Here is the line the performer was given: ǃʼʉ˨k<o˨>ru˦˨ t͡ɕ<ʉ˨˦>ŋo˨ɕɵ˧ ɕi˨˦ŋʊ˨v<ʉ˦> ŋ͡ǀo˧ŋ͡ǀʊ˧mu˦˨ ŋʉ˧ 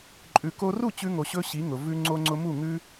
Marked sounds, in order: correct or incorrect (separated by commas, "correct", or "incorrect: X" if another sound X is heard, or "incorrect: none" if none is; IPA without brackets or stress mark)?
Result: incorrect: o˧, incorrect: ʉ˧, incorrect: ʉ˧